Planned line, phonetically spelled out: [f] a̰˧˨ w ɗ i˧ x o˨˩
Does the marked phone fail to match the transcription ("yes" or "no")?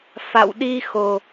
no